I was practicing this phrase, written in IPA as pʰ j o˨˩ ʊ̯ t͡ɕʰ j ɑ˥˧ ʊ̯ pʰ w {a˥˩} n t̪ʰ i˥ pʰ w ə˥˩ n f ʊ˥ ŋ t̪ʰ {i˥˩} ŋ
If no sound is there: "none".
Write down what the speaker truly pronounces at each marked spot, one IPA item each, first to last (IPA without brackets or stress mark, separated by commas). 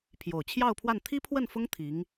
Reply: a˥˩, i˧˥